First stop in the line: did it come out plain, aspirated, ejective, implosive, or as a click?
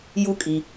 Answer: ejective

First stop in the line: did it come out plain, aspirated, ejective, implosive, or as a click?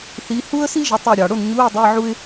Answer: plain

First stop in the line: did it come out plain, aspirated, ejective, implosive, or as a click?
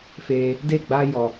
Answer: plain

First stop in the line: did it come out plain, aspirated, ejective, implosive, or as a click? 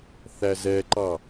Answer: click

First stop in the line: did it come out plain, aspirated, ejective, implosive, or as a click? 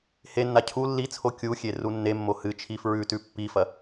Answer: aspirated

